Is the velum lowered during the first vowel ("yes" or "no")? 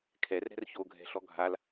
no